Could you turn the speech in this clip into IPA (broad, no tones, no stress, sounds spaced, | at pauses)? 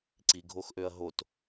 ǀ i ɡʱ o x ʔ ø ɐ̯ ɦ o t